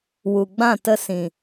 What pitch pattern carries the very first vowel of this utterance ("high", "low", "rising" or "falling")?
low